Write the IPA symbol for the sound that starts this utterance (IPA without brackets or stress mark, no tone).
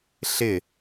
ɬ